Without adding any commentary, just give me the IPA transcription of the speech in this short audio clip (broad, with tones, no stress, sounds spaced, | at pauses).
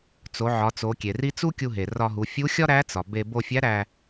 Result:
t͡s o˩˧ ʕ ɒ˩˧ t͡s o˩˧ kʲ e˩ r i˥ t͡s u˥ kʲ u˧ ɦ e˩ r ɒ˧ ɦ u˩˧ fʲ u˧˥ xʲ ɒ˥ ɾ æ˧˥ t͡s ɒ˩ b e˧ b o˧ fʲ æ˧˥ ɾ æ˧